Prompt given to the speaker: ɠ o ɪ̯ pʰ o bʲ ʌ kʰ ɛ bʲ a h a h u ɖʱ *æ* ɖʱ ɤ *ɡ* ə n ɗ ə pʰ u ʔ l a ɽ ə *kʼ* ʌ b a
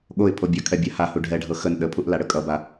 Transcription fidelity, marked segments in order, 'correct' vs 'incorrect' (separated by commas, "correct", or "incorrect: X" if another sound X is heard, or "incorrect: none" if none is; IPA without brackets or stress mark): incorrect: ɛ, incorrect: x, correct